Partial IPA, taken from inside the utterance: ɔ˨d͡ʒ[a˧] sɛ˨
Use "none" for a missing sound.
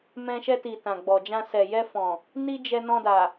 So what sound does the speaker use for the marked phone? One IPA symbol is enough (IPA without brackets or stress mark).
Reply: ã˧